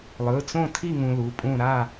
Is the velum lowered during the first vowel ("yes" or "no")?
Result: no